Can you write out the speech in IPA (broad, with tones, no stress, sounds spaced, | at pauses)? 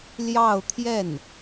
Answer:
l j ɑ˥˧ ʊ̯ t̪ʰ j ɛ˥˩ n